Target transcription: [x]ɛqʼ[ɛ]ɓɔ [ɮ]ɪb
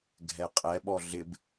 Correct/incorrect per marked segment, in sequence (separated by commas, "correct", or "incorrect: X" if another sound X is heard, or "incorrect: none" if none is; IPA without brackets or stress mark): incorrect: ɡʱ, correct, correct